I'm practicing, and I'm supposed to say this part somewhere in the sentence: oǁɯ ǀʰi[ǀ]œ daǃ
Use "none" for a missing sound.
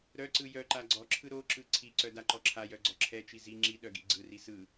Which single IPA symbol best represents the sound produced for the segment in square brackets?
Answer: ǀ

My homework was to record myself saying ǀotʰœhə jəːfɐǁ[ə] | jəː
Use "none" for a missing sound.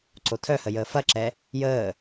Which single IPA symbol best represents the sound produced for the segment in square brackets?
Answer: ɛ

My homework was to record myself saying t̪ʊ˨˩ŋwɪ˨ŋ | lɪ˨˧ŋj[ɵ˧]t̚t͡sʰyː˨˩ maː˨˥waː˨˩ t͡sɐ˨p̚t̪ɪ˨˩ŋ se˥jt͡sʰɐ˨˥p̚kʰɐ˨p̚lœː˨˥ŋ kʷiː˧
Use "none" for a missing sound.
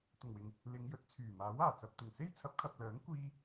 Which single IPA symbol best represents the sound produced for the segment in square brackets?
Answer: ɵ˨˥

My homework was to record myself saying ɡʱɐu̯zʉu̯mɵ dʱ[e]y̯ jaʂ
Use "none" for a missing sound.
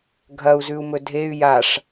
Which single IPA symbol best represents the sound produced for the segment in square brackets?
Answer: e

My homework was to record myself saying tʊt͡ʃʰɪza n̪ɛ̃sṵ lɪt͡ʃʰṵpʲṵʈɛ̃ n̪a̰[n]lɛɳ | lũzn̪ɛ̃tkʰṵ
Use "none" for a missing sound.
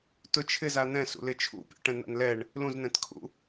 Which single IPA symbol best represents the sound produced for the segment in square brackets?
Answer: n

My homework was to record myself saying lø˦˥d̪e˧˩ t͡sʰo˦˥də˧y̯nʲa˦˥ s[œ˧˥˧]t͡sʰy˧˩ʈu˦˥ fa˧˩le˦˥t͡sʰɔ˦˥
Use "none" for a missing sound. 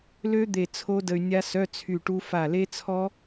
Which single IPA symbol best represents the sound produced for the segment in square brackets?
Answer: œ˧˥˧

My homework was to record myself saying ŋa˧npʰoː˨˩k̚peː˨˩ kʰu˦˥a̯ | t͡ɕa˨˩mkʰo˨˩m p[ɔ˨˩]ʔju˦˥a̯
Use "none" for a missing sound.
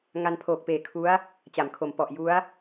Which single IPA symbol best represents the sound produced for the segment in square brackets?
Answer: ɔ˨˩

